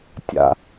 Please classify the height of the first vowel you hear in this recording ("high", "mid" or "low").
low